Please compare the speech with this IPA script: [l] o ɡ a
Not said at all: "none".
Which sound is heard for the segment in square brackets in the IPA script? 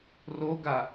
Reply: r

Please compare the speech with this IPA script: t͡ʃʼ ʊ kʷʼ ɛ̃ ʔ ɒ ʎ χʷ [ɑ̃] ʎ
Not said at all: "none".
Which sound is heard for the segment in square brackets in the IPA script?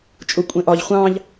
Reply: ɑ̃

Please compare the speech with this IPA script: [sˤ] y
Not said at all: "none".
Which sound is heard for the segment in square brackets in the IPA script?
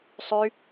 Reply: sˤ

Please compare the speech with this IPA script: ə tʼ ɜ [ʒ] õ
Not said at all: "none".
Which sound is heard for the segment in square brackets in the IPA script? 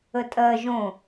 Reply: ʒ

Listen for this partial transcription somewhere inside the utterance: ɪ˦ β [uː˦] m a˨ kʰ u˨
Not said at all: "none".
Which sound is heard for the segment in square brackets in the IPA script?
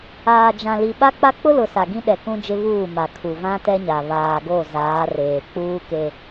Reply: uː˦˨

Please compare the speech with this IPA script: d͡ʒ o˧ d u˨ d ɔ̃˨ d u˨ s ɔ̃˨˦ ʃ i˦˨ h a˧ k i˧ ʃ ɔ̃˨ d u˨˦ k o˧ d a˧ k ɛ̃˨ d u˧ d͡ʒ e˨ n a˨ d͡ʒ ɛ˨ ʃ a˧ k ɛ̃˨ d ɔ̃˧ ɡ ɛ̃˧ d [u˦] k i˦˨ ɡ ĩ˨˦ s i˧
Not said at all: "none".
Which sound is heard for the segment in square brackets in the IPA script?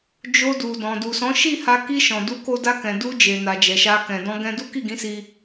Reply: u˦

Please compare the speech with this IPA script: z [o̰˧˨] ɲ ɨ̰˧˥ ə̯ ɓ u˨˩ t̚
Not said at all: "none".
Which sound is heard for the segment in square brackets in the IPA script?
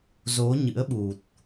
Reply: o˨˦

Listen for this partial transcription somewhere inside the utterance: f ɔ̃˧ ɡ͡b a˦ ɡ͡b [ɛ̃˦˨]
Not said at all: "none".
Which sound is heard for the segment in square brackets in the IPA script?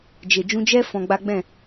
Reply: ɛ̃˦˨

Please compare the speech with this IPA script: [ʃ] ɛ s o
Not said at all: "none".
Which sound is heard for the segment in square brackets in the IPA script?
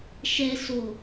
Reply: ʃ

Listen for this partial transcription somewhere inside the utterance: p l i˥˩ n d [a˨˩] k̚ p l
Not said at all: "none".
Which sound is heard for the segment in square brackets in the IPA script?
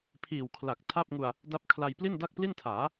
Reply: a˥˩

